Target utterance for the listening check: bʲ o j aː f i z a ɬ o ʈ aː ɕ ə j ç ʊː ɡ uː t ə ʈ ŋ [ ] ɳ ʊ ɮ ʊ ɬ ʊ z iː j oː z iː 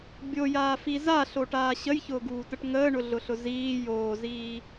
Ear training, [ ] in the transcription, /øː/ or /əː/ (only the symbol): əː